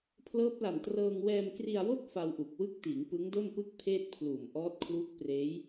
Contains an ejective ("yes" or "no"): no